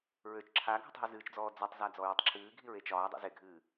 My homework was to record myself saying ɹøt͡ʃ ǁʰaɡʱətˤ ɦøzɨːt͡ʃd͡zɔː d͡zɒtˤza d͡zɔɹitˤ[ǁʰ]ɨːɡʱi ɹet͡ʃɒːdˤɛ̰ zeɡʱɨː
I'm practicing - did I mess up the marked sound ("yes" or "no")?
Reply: no